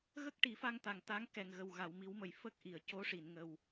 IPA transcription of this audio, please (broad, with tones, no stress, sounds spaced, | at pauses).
ɣ ə˦˥ k̚ ʈ i˨˩˦ f a˧ ŋ t̪ a˨˩ ŋ t̪ a˧˥ ŋ k ɛ˨˩ ŋ ɣ ə˨˩ w ɣ a˨˩˨ w m i˨˩˦ w m ə˨˩ j f ə˦˥ k̚ ʔ i˨˩˨ ə̯ c o˧˥ ʂ i˨˩˨ n ŋ ə˨˩ w